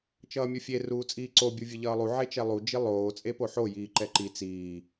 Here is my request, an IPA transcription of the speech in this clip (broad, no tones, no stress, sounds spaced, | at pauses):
t͡ʃ ʌː mʲ u fʲ e r uː t͡sʼ iː ǀ o bʲ u vʲ ɯ ʎ ʌː lˠ u ʕ e t͡ʃ ɛ lˠ u d͡ʒ i lˠ oː t͡sʼ e p o ħ o j iː ǃ ɛ ǃ i t͡s iː